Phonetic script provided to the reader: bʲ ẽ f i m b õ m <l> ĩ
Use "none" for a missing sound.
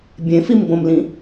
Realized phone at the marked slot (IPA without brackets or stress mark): l